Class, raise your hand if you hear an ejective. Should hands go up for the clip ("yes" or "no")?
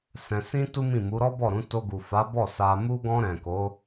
no